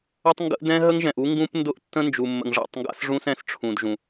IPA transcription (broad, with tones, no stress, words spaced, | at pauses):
ə˦tˤŋɡə̰˦ʔ dɛ̃˦ ɦə˦ŋʒɛ̃˨ʔu˦ ŋɡũ˦p ndʊ˦ʔtːə̃˦nd͡ʒu˨ mːə̰˨ŋʐa̰˦˨tˤŋɡa̰˦sʐũ˦s ɛ̃˦sʈ͡ʂʰũ˨dʒũ˨